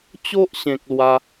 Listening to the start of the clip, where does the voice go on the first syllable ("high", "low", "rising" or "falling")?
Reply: high